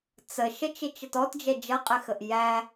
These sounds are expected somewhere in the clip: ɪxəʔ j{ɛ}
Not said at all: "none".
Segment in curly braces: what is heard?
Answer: æ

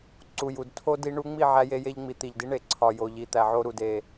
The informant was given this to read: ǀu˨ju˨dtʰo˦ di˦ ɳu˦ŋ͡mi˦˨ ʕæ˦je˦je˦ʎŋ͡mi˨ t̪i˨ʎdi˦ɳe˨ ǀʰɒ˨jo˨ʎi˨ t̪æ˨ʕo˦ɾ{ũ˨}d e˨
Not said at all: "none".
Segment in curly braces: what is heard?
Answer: u˨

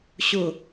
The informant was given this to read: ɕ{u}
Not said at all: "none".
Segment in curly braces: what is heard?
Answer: ʊ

